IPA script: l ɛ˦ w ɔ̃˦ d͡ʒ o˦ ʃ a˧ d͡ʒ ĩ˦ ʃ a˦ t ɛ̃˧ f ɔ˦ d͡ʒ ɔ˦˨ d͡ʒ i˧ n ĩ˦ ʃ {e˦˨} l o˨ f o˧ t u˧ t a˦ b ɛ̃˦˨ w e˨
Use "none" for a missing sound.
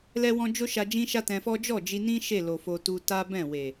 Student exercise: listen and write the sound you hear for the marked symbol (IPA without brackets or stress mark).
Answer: e˦˨